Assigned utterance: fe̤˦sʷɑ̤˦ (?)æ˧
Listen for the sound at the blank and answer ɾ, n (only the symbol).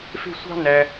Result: n